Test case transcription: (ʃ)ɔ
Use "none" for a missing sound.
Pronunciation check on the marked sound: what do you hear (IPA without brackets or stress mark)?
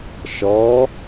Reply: ʃ